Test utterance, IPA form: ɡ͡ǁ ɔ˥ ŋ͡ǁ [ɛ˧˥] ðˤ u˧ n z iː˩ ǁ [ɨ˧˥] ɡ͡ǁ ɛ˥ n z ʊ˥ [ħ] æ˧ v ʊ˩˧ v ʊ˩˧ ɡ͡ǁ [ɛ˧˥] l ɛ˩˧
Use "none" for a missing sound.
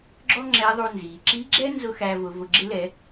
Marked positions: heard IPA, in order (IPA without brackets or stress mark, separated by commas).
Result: ɛ˧˥, i˧˥, x, ɪ˧˥